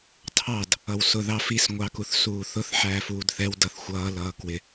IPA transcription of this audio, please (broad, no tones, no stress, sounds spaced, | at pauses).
tʰ ɑ d | ʌ w s ʊ ð ɑ f i s ŋʷ ɑ k u θ s uː θ ʊ θ ħ æː f uː d θ ɛ w d ʌ θ xʷ ʌː l ʌː k w ɪ